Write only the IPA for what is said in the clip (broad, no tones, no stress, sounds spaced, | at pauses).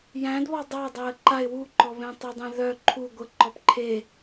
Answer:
j æ̃ d β ɔ dˤ a dˤ æ ə̯ ǃ a ɪ̯ w u ǃ ɔ β ẽ tˤ ə dˤ ẽ ð œ ǃʰ u ɡʷ ə ǃ ɔ p ǃʰ e